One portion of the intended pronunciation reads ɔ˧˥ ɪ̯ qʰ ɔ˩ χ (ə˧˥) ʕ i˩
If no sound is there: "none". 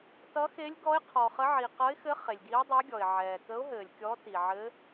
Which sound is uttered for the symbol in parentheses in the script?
ə˧˥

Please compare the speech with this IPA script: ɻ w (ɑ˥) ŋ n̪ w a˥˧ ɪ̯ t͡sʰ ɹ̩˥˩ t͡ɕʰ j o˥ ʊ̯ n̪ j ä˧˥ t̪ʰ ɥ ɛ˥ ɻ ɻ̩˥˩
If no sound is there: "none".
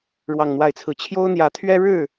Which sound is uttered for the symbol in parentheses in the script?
ɑ˥˧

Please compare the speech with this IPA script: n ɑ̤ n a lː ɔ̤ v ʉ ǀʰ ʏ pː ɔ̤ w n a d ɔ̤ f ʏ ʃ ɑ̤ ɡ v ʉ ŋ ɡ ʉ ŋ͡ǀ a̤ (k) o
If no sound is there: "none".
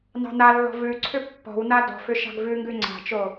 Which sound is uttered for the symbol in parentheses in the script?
t͡ʃ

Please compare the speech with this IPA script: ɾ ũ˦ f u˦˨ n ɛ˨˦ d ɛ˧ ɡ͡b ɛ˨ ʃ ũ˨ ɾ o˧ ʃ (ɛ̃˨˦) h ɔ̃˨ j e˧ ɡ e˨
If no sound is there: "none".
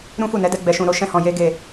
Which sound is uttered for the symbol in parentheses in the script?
ɛ̃˧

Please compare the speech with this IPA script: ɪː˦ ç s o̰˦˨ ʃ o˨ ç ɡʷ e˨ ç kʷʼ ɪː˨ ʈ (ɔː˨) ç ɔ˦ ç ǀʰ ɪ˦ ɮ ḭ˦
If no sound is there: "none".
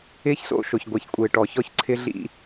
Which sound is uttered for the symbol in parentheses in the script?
ɔ˨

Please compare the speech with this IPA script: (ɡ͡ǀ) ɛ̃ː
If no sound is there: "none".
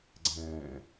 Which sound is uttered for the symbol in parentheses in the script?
ɡ͡ǀ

